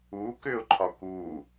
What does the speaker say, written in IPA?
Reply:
u k ʏ ʊ̯ ǃʰ ɒ k u

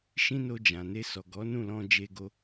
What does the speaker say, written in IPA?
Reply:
ʃ ĩ˦ n o˧ d͡ʒ ã˨ n e˧ s ɔ˨ ɡ ɔ˨˦ n ũ˦˨ l ɔ̃˧ d͡ʒ e˧ ɡ o˧

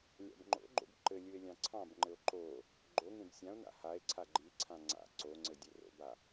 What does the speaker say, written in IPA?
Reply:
lʲ a̰ b ŋ͡ǃ o̰ ɡ͡ǃ o̰ b ǃ ɘ lʲ ɯ e̯ lʲ ɑ̃ ǀʰ ɑ̃ b ŋ͡ǃ ɘ o̯ ǃ o | ɡ͡ǃ o ŋ ẽ b sʲ ã o̯ n a̰ h a e̯ ǀʰ a ɡ͡ǃ i ǀʰ ã ŋ͡ǀ a̰ ǀ o ŋ͡ǀ ɘ dʲ ɘ r o̰ b a

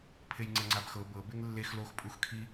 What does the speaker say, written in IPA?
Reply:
pʰ e j ŋ͡ǀ ɛ ŋ͡ǀ a b x ɤ b ɤ b e ŋ lː e x l o x pʼ u x kʰ i

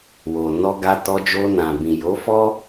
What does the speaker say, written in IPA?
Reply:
w o˨ n ɔ˧ ɡ a˧ t ɔ˧ d͡ʒ o˧ n ã˨ b ĩ˨ j o˨˦ f ɔ˦

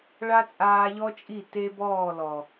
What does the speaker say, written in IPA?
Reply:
ɭ a˦ t͡sʼ aː˧ ʎ ɔ˦ t͡ʃʼ i˦˨ t e˦ b ɔː˦˨ l ɔ˨

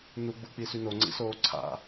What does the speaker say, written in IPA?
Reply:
n̪ u ɡ͡b u k͡p i s y n o ŋ͡ǀ ḭ s oː ǀʰ a̰

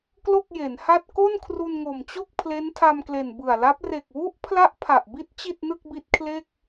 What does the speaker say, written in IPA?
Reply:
k l o˥˩ k̚ j e˩˦ n h a˥˩ t̚ k o˥˩ n kʰ r u˧ n ŋ o˨˩ m t͡ɕ o˥˩ k̚ pʰ l e˦˥ n tʰ a˧ m k l e˨˩ n b ɯ˨˩ a̯ l a˦˥ p̚ r e˨˩ k̚ w u˦˥ ʔ pʰ l a˦˥ ʔ pʰ a˨˩ ʔ b i˦˥ t̚ t͡ɕ i˥˩ t̚ n ɯ˥˩ k̚ b i˦˥ t̚ kʰ l e˥˩ k̚

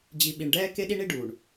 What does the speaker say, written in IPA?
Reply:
d͡ʑ i˨ ɓ i˨ ɳ ɖ ɛː˦ k e˦ ɗ i˦ ɳ i˦ ɖ uː˨ ɳ

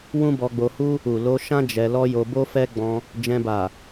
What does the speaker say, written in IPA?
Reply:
w ũ˦ b ɔ˧ ɡ͡b o˧ h u˦ | u˨ l o˧ ʃ ã˦ d͡ʒ ɛ˧ l ɔ˦ j o˧ b o˦ f ɛ˦ ɡ͡b ɔ̃˧ | d͡ʒ ɛ̃˧ b a˨

